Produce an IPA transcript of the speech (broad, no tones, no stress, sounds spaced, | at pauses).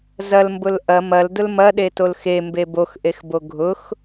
z ɐ l m b ʊ l ʔ ɐ m ɐ l d ʊ l m ɐ ɗ e t o l x e m b e b o x ʔ e x b o ɡʱ ʊ x